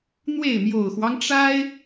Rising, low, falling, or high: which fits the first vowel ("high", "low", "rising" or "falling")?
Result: falling